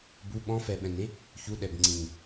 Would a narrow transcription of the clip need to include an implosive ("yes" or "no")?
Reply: yes